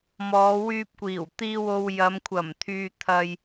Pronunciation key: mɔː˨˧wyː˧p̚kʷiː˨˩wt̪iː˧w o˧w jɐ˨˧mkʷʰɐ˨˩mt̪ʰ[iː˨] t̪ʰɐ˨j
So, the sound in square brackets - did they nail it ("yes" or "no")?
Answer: no